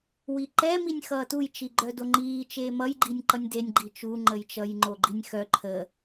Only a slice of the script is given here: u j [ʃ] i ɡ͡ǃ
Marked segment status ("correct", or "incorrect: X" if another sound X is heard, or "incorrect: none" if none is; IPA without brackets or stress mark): incorrect: t͡ʃ